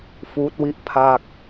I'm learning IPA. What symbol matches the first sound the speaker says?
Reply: f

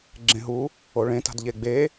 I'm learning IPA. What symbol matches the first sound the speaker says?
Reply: ɡ͡ǁ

